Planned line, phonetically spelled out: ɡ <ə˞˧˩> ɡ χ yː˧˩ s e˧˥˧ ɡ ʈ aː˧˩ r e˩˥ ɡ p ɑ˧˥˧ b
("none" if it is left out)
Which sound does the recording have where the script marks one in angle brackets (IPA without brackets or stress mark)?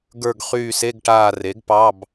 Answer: ə˞˧˩